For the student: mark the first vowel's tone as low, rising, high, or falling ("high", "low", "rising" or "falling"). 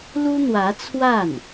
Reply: high